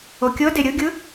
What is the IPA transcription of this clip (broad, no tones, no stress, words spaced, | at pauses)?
okʲɤde ɾʲɯɡʲɯ